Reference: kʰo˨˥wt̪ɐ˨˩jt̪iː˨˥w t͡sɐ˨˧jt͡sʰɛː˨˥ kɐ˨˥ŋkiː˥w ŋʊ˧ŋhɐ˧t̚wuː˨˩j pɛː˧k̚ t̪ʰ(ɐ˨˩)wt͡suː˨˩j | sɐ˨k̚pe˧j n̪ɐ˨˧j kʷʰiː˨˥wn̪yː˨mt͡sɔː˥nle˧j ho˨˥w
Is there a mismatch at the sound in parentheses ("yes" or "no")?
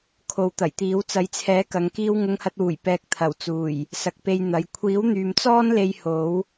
no